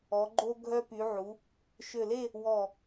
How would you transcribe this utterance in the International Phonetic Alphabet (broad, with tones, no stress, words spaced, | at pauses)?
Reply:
ɔ˩˧ɡ͡ǃo˧ ɡʱœ˧py˩˧ʕu˩˧ | ʃø˧˩le˥˧ | wɔ˧˩